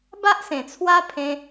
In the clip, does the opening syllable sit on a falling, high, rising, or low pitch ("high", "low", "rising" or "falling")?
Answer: high